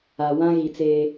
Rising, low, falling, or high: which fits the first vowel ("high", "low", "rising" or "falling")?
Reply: low